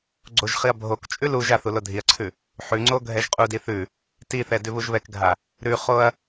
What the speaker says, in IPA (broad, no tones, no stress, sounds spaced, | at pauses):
ɡ͡ǀ o ʒ χ i ɐ̯ bʱ o k t͡ʃʼ ʉ l u ʒ a θ u l o dʱ i ɐ̯ ǀʰ ʉ | ħ ʉ ŋ͡ǀ o ɡʱ ɛ ʒ qʼ u d i θ ʉ | t i θ ɛ d ʉ β u ʒ β ɛ k ɡʱ a | ɾ ʉ χ o ɐ̯